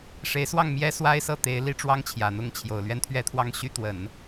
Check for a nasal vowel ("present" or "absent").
absent